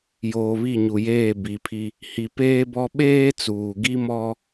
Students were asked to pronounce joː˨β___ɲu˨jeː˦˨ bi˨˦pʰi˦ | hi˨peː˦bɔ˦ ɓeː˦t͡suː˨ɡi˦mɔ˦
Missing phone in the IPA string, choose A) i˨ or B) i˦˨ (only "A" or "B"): B